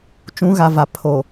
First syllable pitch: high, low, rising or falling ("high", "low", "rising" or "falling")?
rising